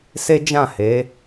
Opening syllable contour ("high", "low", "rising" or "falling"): high